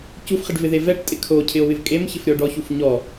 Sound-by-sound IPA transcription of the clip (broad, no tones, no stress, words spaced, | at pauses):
cufχɪɖvɪðe vɛʈtʼɪ kʰocʰɪo̯βɪv kʼemçɪfɾʲɔ ɖɔçuf ɲɔ